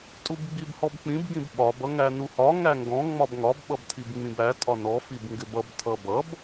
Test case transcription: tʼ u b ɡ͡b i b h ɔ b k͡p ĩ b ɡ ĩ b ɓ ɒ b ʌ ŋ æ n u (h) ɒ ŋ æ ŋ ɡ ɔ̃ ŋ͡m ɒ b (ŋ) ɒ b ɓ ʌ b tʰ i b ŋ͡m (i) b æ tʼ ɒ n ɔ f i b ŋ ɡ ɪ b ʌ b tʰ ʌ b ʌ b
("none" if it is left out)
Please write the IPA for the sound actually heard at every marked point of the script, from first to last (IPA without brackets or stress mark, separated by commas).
h, ŋ, ĩ